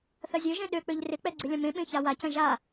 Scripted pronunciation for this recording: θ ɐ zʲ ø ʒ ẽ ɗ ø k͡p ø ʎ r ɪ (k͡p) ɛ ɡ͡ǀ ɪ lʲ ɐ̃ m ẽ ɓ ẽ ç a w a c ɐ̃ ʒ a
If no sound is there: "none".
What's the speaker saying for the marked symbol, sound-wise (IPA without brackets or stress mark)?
k͡p